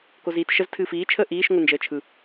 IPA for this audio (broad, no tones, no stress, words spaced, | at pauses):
koziːtʃəz tʰɨːfiːt͡ʃʰəː ʔiːʃ ŋʷɯnd͡ʒəːt͡ʃʰɯ